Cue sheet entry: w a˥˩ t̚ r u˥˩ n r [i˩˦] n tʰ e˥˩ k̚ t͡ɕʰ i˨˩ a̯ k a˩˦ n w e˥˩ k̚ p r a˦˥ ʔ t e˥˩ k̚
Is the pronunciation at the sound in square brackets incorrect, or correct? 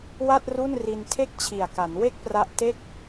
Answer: incorrect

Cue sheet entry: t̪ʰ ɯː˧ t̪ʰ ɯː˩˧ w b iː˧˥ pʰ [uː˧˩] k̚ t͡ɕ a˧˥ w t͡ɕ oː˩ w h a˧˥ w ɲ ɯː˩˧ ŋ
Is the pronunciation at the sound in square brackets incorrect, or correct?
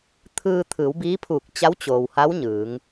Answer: correct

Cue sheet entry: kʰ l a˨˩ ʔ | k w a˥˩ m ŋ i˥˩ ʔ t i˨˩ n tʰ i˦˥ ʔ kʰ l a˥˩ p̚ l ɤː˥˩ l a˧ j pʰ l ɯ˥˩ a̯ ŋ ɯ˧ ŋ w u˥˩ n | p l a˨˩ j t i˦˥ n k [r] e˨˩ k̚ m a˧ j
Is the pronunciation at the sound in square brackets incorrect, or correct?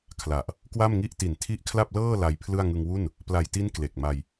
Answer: incorrect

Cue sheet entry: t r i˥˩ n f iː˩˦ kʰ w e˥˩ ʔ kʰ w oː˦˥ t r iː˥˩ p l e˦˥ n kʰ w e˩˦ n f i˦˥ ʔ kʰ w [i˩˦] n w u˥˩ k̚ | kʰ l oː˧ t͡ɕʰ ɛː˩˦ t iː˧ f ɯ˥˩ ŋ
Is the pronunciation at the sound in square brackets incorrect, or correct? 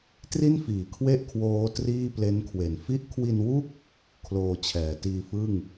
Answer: incorrect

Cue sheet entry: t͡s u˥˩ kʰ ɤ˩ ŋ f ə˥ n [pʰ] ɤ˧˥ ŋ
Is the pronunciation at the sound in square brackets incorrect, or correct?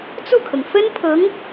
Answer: correct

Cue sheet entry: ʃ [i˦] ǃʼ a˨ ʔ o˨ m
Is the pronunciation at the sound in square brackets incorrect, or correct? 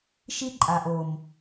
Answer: correct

